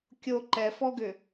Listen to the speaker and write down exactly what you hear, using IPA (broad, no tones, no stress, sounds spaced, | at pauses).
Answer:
kʲ o ǃ ɛ f ɔ ɡ ʏ